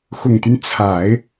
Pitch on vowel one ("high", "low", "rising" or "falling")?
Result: low